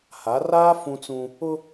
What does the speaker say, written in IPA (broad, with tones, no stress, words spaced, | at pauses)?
ha˨˦raː˦ fũ˦t͡sũ˦ | ʊ˦